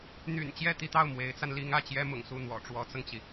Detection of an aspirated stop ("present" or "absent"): absent